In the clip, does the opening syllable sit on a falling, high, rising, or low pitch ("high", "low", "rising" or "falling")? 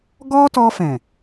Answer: high